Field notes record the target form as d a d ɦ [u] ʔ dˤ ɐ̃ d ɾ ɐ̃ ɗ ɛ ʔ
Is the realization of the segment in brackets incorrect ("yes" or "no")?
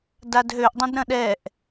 yes